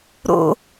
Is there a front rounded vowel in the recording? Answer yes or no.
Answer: no